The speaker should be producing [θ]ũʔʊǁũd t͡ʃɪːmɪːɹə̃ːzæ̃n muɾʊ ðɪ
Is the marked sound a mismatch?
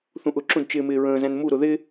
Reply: no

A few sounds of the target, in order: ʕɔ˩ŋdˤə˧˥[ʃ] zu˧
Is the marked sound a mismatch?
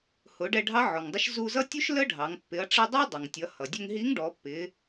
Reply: no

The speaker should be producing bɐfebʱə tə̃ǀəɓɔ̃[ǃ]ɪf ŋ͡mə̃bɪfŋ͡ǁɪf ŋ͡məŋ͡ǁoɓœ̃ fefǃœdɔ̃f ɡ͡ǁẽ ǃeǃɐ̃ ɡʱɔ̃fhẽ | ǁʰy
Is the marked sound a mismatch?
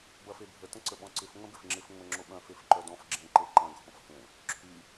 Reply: yes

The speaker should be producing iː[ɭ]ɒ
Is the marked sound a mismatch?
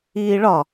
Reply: no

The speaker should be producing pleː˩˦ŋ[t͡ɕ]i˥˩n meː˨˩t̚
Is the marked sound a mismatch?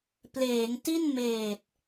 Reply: yes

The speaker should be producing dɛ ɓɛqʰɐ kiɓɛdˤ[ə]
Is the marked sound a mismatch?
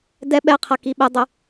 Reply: no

